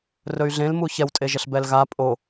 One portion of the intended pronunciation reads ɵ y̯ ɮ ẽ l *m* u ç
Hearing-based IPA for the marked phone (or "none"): m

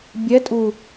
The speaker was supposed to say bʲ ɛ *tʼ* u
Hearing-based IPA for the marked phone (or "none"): tʼ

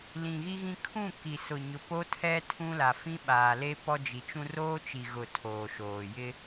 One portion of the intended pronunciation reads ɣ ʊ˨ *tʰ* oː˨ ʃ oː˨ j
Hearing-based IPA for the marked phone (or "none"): tʰ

